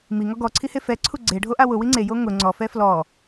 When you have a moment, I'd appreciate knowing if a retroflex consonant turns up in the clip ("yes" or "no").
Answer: yes